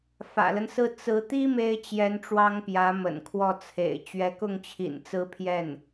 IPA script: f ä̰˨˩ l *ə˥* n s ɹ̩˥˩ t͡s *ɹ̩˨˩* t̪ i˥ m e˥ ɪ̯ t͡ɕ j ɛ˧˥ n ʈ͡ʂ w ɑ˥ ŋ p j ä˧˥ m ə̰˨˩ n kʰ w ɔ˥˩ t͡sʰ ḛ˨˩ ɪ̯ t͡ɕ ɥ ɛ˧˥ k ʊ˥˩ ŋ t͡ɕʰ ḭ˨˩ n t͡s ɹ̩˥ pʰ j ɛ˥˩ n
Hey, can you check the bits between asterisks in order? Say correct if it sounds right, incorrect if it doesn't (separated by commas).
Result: incorrect, incorrect